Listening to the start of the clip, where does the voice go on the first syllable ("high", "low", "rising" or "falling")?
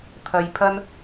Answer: low